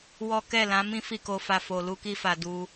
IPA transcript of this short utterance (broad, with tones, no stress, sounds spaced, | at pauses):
w ɔ˦ k ɛ˦˨ l ã˨˦ m ĩ˦ f i˦˨ k o˧ f a˧ f o˧ l u˦ k i˦ f a˧ d u˦